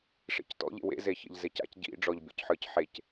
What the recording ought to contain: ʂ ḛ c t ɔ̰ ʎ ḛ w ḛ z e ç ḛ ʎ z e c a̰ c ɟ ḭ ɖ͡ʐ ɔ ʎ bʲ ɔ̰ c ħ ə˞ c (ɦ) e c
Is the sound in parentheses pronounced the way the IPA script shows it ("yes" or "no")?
no